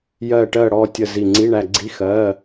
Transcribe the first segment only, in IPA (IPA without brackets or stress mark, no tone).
j